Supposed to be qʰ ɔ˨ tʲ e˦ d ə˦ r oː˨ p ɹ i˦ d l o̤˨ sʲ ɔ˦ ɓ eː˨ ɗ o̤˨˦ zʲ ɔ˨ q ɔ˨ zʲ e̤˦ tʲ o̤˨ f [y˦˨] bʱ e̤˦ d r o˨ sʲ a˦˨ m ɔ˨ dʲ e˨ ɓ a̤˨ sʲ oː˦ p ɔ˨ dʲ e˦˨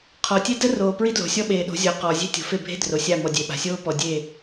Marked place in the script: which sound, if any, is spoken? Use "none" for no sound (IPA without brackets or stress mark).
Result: e˦˨